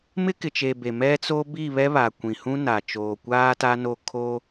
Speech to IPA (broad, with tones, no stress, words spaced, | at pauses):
mɪ˦kɪ˨t͡ʃe˨ be˨mɛ˦t͡so˦ bi˦˨ βɛ˦βa˨ kʷĩ˨hũ˦na˨ t͡ʃoː˨kʷaː˦ta˦no˦˨ kʰo˦